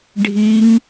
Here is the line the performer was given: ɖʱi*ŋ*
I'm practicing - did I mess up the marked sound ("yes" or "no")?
no